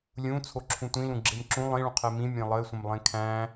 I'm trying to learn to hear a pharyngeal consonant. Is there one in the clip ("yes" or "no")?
no